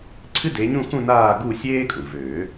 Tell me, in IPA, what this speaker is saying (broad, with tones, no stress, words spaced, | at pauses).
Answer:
ǀʰɨ˥de˨˦ɲũ˥˧xũ˥˧ naː˥˧ ɡu˥˧sʲeː˥kʼũ˩ vøː˨˩˦